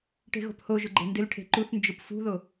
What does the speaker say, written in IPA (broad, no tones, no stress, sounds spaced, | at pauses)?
ʈ e̤ ɣ o̤ p h o ʒ ʊ ɡ͡ǃ e̤ n d ɪ l ʈʰ e̤ ǃ u θ n d͡ʒ ʊ p f ṳ ð o